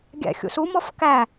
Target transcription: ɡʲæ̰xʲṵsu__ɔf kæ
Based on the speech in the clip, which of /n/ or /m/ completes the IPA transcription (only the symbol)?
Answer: m